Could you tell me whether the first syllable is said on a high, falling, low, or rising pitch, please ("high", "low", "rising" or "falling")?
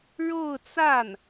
falling